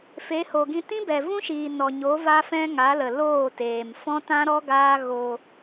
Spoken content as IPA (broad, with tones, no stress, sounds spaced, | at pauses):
f e˨˦ h o˨ ɡ ĩ˧ t ĩ˦ b ɛ˨ v ũ˦ ʃ iː˨ n ɔ˨ ɲ o˨˦ v a˦ f ɛ̃˦ ŋ a˨˦ l ə˨ l oː˦˨ t eː˨ m f ɔ̃˦ t ã˦ ɾ ɔ˦ ɡ aː˦ ɣ o˧